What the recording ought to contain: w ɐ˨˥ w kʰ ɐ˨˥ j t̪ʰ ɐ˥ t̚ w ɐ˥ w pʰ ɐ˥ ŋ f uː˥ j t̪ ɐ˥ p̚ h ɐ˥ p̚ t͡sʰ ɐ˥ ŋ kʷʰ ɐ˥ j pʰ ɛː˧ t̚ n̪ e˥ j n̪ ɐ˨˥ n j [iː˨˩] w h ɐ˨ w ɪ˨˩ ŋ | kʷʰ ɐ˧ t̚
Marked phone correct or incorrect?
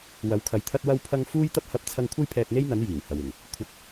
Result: correct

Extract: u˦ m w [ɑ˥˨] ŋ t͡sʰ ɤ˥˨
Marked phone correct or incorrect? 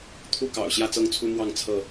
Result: correct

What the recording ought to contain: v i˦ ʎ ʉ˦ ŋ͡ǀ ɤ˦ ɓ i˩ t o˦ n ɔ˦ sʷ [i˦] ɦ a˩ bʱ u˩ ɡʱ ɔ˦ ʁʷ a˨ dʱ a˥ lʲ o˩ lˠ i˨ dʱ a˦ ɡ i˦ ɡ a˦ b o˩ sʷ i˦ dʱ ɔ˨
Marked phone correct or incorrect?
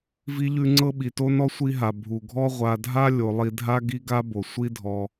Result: correct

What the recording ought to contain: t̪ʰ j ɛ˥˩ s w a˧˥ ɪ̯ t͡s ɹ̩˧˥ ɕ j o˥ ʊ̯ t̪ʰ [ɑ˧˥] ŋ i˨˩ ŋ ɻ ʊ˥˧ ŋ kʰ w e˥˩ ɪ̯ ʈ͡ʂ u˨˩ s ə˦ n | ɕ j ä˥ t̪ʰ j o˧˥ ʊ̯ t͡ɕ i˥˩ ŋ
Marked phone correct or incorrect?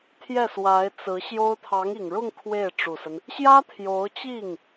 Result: correct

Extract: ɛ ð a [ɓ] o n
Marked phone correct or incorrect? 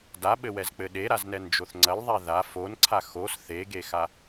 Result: incorrect: f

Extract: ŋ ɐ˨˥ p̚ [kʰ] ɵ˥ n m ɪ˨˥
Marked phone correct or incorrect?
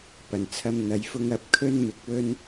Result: correct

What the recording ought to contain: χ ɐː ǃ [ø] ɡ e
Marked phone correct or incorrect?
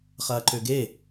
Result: correct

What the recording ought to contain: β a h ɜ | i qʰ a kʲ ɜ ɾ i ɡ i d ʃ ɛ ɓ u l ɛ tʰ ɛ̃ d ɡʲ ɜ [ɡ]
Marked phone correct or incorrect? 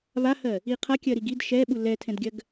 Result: correct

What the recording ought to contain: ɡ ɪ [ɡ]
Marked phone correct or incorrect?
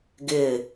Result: incorrect: none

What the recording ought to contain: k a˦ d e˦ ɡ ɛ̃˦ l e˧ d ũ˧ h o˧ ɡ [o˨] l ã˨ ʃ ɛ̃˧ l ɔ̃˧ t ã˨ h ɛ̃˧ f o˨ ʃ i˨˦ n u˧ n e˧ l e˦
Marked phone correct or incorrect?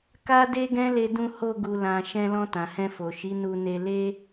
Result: incorrect: u˨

